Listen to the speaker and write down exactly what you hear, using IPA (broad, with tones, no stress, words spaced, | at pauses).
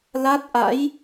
la˦˥t̚ʔa̰˧˥j